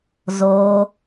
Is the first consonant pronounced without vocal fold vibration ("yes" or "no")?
no